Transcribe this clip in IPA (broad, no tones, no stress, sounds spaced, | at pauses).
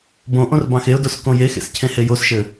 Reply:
b õ ʔ õ r b ɑ̃ x e ʊ̯ d o s k õ j e x ḛ s cʰ ẽ h e j o s ʃ ɘ